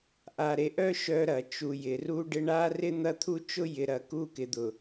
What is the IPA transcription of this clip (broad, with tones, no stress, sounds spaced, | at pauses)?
ʔ a˨ ɾ e˨ ʔ œ˦ ʃ œ˦ ɾ ɐ˨ t͡ʃ u˨ j ɪ˨ r u˦ ɖ ɪ˦ ɳ a˦ r ɪ˦ n̪ ɐ˦ t̪ʰ u˦ t͡ʃ ʊ˦ j ɪ˨ ɾ ɐ˨ k u˦˨ k ɪ˨ d̪ ʊ˨